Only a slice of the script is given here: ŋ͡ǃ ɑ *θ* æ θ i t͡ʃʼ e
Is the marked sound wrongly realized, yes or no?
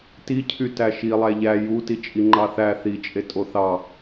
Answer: no